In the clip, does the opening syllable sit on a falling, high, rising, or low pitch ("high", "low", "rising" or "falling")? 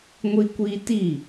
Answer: high